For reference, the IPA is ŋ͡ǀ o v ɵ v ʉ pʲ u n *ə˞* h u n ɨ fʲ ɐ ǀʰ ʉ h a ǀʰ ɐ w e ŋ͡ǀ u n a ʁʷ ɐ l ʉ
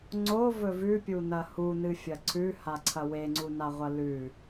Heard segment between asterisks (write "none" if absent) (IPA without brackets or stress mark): ɐ